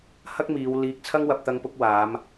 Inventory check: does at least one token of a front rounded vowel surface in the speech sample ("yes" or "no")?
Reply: no